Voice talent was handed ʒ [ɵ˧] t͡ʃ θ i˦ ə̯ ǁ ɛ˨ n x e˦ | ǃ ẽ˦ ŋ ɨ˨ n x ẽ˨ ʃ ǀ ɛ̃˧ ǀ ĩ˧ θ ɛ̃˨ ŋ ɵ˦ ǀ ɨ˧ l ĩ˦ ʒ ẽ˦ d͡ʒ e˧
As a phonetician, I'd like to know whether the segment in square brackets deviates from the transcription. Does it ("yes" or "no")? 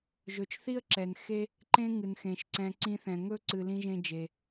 yes